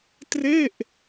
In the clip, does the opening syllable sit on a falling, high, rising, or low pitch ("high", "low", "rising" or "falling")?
falling